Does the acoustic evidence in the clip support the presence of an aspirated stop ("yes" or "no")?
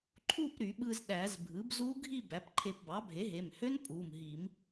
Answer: yes